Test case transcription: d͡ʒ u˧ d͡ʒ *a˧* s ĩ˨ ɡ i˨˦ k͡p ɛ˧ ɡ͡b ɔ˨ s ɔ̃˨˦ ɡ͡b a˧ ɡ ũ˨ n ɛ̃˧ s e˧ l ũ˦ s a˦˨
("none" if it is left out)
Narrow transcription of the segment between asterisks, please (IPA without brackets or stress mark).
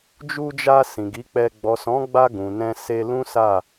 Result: a˧